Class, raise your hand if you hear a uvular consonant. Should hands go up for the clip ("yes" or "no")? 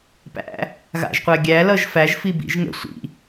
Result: yes